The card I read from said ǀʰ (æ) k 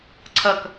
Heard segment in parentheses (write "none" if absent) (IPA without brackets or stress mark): ɐ